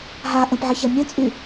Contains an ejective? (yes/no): yes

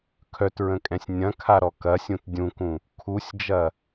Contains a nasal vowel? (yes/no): yes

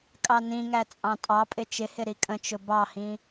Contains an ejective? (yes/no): yes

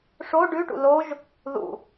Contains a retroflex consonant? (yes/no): yes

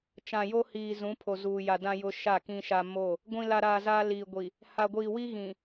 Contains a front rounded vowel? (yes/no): no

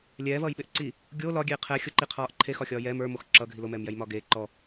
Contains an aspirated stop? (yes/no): yes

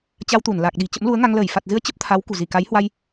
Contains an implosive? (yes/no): yes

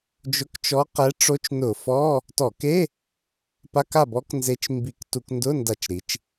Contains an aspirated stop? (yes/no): no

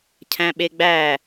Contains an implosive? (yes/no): yes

